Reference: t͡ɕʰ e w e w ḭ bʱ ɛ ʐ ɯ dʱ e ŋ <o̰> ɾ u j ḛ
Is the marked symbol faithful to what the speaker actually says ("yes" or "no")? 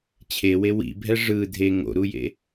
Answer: yes